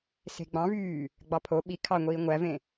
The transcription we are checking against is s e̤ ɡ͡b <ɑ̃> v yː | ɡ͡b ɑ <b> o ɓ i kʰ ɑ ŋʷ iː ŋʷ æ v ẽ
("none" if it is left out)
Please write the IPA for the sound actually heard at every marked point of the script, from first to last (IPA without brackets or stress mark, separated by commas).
ɑ̃, pʰ